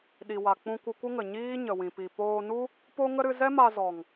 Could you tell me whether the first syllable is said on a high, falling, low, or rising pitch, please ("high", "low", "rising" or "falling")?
low